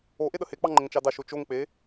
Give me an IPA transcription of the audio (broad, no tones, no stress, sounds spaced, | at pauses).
o ʔ e ɗ ə h e k͡p ɑ ŋ͡ǃ ə ŋ t͡ʃ ɑ d ɑ ʃ o t͡ʃ o ŋ k͡p e